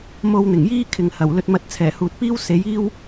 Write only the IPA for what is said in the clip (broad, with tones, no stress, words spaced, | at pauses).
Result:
mo˧wn̪ɪ˨˩ŋjiː˥ kʰɪ˨ŋhɐ˨˩wlɵ˧t̚mɐ˧t̚ t͡sʰɛː˨˩huː˨t̚piː˥w se˨˥jiː˥w